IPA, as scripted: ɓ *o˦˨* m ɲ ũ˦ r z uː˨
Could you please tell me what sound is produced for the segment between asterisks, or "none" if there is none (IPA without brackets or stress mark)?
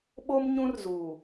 o˦